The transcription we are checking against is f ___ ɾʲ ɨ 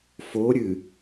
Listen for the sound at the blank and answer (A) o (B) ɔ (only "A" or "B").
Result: A